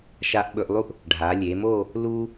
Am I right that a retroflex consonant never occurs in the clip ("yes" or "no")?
no